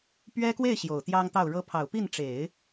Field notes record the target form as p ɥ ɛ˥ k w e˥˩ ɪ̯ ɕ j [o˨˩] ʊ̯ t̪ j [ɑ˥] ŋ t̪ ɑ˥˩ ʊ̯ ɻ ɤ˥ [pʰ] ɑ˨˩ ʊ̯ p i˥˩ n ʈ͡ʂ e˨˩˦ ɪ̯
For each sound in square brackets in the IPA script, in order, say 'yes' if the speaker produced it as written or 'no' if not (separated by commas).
yes, yes, yes